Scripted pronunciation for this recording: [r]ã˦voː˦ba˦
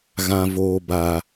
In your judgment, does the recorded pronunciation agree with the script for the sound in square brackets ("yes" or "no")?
no